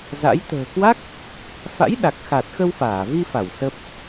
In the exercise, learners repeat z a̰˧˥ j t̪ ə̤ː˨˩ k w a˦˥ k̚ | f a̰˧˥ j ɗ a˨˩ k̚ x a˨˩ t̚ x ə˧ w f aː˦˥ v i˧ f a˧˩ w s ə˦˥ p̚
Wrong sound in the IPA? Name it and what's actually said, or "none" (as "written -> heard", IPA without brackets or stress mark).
aː˦˥ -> aː˧˩